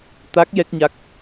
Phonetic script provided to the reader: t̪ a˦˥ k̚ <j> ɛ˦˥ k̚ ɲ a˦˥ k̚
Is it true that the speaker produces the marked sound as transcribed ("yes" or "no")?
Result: yes